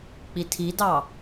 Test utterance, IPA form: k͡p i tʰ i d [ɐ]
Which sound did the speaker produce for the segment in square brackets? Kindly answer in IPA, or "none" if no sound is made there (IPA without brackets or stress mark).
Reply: ɑ